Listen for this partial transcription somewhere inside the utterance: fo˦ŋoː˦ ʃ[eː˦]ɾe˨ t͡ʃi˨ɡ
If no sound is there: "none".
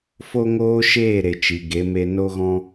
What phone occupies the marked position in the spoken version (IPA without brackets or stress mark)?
eː˦˨